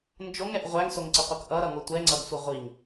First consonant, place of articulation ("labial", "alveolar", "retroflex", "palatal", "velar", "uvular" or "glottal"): alveolar